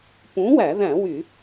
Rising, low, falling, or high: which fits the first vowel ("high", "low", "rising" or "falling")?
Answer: rising